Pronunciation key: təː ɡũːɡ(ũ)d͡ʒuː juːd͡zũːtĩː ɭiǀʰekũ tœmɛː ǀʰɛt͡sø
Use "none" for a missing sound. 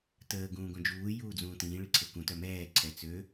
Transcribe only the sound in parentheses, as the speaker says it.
õ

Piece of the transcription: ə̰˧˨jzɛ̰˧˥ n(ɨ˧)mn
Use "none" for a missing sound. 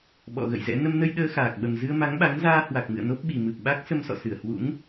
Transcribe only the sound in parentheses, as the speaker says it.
ə˧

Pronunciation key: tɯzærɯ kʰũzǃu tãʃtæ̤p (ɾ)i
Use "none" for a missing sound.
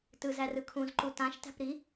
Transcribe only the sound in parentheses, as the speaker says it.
ɾ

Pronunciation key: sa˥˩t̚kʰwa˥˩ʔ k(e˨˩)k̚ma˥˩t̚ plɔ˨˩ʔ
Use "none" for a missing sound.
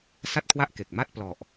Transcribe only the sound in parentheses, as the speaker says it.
e˨˩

